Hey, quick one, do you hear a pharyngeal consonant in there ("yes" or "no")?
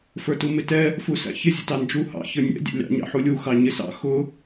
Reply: yes